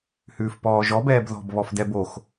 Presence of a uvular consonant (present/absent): absent